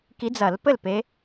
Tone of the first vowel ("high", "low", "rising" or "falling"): rising